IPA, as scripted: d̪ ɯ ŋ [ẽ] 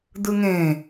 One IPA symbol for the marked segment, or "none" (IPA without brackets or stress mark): ẽ